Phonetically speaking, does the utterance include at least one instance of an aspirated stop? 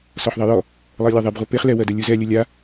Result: no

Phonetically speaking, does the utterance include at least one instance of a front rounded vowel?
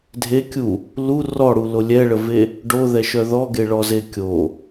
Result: yes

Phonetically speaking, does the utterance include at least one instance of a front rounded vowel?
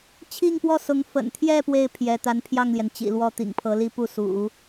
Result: no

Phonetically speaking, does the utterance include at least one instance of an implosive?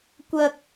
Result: no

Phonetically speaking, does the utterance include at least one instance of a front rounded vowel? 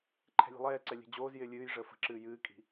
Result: no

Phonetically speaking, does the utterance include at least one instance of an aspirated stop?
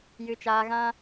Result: no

